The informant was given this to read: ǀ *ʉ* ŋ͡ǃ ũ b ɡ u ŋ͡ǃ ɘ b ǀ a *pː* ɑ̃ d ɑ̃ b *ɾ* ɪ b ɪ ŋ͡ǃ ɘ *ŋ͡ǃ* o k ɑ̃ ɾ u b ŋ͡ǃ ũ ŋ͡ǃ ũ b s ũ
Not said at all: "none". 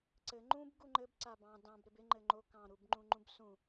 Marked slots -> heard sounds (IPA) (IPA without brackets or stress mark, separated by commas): ɘ, b, ɾ, ŋ͡ǃ